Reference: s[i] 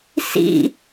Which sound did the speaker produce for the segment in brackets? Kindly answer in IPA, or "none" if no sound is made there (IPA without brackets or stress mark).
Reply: ḭ